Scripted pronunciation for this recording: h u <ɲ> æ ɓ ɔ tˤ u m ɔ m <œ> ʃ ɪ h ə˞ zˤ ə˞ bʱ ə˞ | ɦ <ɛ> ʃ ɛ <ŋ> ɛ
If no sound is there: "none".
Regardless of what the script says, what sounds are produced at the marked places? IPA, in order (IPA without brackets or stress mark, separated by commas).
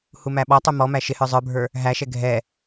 m, æ, æ, ɡʱ